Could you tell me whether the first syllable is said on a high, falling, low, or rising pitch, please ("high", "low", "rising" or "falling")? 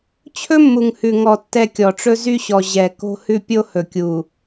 high